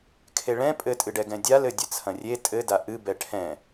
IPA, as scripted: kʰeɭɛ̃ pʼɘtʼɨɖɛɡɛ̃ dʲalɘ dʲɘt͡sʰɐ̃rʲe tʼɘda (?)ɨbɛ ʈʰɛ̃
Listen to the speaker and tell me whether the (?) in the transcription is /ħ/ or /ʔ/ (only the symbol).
ʔ